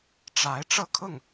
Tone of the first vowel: rising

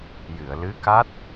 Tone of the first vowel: low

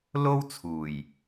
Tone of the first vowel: high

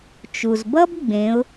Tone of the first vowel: low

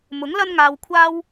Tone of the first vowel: rising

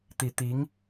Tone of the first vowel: low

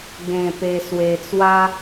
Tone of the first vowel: low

